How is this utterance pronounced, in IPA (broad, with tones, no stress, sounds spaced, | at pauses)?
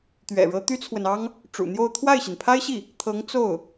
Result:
t̪ ɥ ɛ̰˨˩ ɻ ɤ˧˥ t̪ y˥ t͡sʰ w ə˨ n ɑ˥ ŋ | ʈ͡ʂ ṵ˨˩ n̪ j o˥˧ ʊ̯ t̪ʰ w a˥˩ ɪ̯ ɕ i˩ n pʰ a˥ ɪ̯ ɕ i˥˩ | t̪ʰ ɤ˧˥ ŋ t͡s o˥˩ ʊ̯